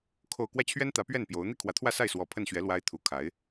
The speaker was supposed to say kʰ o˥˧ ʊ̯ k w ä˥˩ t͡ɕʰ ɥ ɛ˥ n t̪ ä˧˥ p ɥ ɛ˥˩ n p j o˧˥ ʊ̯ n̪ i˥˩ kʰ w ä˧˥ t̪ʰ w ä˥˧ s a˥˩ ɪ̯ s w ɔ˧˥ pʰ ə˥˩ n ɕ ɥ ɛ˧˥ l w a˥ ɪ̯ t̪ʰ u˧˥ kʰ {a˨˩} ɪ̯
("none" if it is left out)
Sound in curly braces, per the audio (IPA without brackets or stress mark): a˧˥